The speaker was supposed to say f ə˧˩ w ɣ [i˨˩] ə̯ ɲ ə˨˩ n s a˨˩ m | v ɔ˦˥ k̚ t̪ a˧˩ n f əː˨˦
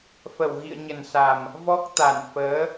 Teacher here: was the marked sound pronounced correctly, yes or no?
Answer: no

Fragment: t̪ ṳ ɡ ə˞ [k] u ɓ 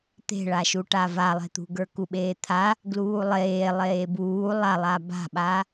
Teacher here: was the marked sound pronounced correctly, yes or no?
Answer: yes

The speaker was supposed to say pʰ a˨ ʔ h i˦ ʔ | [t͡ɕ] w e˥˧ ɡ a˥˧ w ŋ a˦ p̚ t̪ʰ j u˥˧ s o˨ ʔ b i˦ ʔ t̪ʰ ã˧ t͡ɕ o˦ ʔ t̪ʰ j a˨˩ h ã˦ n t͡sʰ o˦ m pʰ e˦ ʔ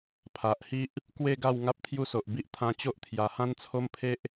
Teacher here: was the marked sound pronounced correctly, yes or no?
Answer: no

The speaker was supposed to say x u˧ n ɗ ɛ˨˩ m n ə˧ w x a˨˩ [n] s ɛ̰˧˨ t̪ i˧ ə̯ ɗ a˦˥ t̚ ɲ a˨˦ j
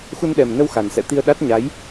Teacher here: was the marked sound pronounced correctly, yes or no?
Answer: yes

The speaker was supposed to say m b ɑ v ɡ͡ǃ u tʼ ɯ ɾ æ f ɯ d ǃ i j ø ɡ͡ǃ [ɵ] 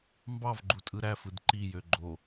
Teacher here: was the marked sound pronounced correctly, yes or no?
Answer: no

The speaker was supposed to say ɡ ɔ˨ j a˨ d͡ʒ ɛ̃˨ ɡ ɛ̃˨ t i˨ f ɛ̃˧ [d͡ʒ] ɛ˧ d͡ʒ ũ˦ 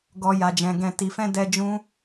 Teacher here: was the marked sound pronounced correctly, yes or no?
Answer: no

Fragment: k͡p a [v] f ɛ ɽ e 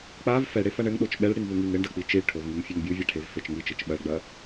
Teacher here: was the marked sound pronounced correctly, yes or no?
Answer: yes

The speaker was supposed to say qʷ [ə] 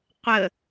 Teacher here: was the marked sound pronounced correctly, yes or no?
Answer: yes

